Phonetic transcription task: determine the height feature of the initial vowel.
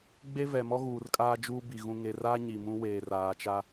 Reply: mid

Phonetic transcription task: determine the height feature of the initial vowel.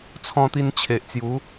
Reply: mid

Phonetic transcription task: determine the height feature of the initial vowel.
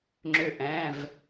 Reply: high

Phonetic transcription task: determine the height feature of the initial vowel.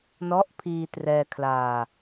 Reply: mid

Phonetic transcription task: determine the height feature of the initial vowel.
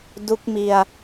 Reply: high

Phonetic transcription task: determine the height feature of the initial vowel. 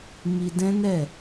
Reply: high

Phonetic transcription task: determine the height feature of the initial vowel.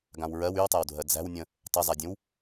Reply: low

